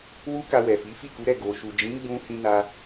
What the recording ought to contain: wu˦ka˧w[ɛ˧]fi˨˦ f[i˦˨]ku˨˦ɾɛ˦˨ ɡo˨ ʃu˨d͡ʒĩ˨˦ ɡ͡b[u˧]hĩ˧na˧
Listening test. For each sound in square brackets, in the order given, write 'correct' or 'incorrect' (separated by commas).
incorrect, correct, incorrect